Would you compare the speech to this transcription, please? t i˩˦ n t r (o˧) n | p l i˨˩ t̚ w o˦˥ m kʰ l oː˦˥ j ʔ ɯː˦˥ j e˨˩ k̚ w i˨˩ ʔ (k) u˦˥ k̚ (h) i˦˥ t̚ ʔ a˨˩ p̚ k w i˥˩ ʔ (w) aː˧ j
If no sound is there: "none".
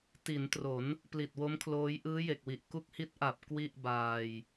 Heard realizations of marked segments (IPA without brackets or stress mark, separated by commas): o˩˦, k, h, b